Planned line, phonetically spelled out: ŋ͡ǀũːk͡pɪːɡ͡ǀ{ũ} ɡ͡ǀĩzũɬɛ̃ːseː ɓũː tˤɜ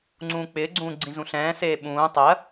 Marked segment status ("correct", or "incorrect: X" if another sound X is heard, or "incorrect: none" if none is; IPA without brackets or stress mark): incorrect: ũː